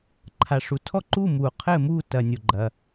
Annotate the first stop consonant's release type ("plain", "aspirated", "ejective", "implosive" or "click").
click